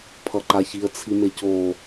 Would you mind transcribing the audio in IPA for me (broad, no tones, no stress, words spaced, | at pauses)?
pʰʌǃaçiə̯ t͡sʰimeco